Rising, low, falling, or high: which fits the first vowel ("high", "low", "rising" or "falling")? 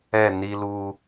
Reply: falling